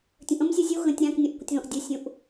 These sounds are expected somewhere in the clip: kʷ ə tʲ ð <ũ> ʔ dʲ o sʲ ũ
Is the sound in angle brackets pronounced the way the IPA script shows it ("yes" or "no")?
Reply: no